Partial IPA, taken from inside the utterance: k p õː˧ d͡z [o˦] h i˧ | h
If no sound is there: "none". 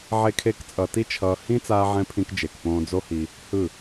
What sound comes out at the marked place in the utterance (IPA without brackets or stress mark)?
o˦